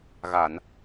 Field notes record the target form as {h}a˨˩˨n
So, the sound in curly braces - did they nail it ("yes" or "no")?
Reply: no